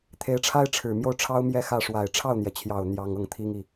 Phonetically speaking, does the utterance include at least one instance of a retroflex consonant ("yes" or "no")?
yes